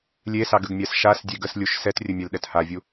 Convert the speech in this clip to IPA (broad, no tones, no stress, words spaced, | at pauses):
lʲesɑɡəɡmʲas ʃas dʲeɡəslʲuʃ sɛtrʲə mʲɛlɗɛthavʲu